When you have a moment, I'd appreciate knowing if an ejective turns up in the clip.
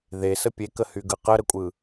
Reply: yes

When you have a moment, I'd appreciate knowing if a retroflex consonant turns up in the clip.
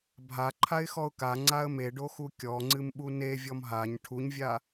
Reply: yes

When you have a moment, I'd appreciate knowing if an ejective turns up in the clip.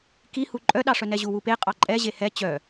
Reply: yes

